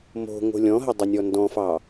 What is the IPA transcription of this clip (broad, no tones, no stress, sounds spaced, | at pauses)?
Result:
m o̤ ŋ o̤ lʲ ɔ̃ ɦ ə dˤ ɘ nʲ ɔ n d ɔ̃ f ɑ